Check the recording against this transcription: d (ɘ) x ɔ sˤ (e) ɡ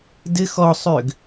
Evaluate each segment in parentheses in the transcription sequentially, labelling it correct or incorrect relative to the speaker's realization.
correct, incorrect: ø

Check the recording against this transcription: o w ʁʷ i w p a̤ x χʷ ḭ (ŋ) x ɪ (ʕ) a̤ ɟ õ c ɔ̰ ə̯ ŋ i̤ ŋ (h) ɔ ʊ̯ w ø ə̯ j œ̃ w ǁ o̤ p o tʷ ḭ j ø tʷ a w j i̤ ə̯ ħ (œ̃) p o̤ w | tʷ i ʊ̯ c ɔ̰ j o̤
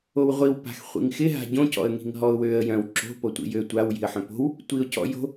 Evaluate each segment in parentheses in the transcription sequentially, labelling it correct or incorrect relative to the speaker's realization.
correct, incorrect: ɦ, incorrect: ɦ, correct

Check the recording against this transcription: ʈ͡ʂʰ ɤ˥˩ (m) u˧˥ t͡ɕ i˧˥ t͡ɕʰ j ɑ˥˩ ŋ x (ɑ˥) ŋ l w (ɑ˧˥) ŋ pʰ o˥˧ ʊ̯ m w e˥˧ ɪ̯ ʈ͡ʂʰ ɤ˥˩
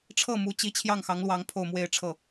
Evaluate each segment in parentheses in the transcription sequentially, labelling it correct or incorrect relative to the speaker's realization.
correct, incorrect: ɑ˧˥, correct

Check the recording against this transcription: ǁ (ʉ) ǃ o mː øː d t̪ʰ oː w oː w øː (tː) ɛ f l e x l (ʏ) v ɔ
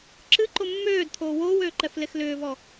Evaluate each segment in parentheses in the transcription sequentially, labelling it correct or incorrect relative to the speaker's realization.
incorrect: ɨ, incorrect: ǃ, incorrect: ʏː

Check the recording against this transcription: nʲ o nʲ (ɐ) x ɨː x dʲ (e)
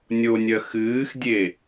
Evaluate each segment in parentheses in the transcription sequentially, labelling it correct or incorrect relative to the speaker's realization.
correct, correct

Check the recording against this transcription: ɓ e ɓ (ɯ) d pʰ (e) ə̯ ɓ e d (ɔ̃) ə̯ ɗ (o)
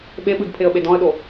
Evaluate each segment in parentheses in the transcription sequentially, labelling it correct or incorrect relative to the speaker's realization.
correct, correct, correct, correct

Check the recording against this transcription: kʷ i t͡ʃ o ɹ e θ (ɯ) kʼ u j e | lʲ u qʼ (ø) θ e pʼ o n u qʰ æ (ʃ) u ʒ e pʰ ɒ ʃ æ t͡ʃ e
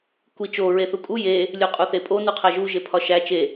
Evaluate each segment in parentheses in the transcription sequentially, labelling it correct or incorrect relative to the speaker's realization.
incorrect: u, incorrect: u, incorrect: ʒ

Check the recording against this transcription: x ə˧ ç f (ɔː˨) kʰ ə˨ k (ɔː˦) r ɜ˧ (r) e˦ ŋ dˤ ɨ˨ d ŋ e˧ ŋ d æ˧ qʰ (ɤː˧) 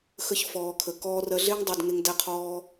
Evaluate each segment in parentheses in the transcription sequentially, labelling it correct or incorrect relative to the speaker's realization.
correct, incorrect: ɔː˧, incorrect: ɮ, incorrect: ɔː˧

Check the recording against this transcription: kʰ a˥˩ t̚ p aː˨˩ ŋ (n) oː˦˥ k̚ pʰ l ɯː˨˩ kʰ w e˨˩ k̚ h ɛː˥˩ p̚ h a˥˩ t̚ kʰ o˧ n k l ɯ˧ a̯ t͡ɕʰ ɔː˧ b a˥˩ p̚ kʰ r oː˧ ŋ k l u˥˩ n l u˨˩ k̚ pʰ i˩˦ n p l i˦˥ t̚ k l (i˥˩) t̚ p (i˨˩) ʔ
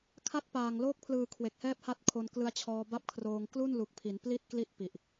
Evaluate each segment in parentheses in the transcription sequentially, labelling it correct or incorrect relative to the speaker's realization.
incorrect: l, correct, correct

